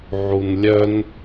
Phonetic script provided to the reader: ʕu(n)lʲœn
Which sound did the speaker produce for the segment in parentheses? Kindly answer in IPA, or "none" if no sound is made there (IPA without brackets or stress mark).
n